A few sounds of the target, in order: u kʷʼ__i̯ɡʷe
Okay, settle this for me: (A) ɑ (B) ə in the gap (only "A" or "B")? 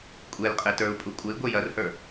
B